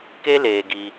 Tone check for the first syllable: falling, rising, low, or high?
high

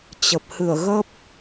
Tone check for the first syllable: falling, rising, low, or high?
low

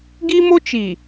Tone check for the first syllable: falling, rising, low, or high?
high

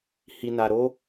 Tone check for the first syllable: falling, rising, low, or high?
low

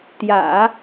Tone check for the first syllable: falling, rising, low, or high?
low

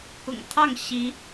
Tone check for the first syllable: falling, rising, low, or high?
low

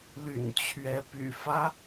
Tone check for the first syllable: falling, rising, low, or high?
low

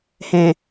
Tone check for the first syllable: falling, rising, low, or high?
low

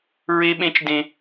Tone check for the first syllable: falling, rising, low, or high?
high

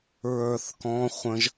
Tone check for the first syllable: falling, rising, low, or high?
falling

